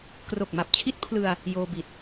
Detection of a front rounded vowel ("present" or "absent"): absent